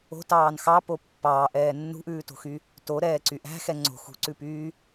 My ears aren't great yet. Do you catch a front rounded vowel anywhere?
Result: yes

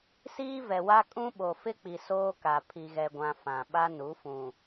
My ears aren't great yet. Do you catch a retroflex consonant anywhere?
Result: no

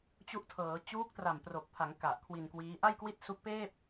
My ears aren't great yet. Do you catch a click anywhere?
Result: no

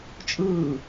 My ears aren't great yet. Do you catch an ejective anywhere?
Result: yes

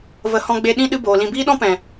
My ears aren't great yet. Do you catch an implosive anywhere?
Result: yes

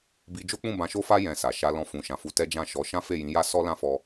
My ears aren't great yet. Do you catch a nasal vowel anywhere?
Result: yes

